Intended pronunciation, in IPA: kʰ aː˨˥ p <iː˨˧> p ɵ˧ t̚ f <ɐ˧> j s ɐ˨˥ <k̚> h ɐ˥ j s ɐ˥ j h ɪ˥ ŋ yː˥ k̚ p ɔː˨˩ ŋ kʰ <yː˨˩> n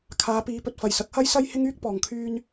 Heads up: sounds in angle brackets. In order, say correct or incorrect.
correct, incorrect: ɐ˨˩, correct, incorrect: yː˧

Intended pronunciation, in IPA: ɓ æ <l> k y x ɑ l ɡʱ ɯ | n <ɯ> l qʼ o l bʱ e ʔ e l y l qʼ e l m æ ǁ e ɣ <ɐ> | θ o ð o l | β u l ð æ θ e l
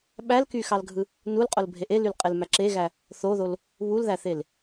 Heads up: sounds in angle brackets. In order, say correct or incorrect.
correct, incorrect: u, incorrect: æ

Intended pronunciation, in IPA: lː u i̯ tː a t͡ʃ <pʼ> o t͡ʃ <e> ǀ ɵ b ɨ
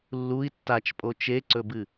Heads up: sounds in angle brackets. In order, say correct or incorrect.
correct, correct

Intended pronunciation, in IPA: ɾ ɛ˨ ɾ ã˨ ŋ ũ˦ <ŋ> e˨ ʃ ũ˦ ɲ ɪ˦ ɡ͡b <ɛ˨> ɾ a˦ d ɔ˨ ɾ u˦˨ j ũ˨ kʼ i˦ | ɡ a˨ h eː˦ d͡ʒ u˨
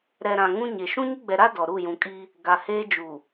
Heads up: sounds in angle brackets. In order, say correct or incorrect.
incorrect: ɲ, correct

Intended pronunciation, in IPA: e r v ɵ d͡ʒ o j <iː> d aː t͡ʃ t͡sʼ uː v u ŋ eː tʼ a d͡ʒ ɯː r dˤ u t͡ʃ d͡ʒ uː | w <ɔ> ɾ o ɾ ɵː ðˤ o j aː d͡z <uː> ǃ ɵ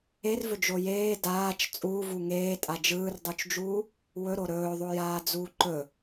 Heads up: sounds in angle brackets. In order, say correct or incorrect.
incorrect: eː, incorrect: ɵ, correct

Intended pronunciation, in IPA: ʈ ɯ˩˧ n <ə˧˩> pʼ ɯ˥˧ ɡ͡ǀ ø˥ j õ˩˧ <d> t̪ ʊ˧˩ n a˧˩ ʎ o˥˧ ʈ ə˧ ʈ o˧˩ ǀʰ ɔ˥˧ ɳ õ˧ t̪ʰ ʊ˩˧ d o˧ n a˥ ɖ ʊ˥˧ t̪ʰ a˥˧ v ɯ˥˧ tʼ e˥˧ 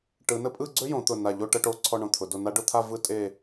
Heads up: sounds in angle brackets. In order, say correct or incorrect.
incorrect: ə˥, incorrect: none

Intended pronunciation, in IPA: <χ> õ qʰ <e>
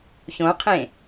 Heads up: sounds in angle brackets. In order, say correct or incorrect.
incorrect: ç, incorrect: ẽ

